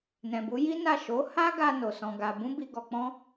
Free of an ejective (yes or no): yes